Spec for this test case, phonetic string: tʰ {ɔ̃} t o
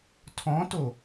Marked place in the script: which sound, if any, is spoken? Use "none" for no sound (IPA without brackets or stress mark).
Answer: ɔ̃